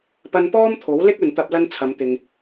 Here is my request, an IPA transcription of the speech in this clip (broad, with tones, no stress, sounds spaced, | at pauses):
p ɐ˧ n p ɔː˥ m t̪ʰ o˨˥ w l ɪ˥ k̚ ɵ˨ n t̪ ɐ˧ p̚ l ɐ˥ n t͡sʰ ɐ˨˧ m t̪ ɪ˨ ŋ